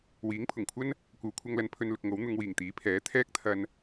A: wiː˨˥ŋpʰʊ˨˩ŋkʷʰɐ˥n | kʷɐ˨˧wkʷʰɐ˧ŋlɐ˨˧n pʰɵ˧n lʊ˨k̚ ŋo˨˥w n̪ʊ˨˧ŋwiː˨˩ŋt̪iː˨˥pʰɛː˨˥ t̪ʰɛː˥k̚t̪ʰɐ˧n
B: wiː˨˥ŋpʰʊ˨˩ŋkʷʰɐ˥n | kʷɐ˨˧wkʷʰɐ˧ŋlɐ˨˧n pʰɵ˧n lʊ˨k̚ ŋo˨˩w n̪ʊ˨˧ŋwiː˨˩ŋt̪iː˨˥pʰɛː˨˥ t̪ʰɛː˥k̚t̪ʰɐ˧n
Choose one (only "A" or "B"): A